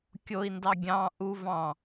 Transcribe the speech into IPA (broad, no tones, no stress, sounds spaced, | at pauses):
kʲ o i̯ n d ɑ ɡʲ ɑ̃ ʔ u v ɑ̃